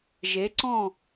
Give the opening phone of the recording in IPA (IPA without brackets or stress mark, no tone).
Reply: ʒ